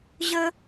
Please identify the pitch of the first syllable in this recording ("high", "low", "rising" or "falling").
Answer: high